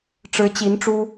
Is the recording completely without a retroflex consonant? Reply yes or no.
no